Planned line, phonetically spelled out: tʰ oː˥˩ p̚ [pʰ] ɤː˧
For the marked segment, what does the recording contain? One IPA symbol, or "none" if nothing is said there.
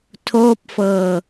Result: f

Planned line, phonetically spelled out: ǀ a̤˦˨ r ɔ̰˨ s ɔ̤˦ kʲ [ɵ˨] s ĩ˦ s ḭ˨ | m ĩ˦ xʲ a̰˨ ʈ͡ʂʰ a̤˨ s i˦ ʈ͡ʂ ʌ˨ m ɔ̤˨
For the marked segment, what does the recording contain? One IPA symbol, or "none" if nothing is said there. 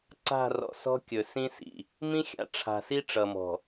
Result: ɵ˨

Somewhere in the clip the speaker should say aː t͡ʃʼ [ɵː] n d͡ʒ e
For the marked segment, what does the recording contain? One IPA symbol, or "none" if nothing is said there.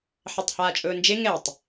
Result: ɵː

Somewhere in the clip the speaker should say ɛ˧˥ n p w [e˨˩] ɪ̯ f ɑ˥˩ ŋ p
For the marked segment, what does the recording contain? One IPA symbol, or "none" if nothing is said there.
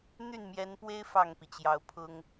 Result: e˥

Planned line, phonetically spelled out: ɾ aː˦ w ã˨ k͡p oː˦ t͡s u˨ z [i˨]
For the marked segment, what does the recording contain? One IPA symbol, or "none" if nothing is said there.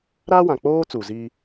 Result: i˦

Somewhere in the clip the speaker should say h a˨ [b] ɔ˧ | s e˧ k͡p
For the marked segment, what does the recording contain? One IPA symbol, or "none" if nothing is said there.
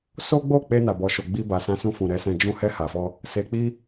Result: f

